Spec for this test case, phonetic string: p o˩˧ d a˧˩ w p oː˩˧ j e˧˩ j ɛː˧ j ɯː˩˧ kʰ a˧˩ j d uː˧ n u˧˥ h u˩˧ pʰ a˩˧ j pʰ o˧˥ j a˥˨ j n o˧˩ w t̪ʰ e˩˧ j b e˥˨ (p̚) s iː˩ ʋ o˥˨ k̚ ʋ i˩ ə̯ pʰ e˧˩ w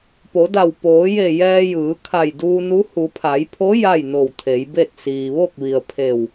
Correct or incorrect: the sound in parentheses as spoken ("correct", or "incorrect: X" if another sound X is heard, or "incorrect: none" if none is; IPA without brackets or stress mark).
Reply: incorrect: t̚